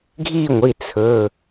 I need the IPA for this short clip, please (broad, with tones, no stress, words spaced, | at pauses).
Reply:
ɡʱi˥˧ŋʷi˩˧˩ t͡sʰɵ˩˧˩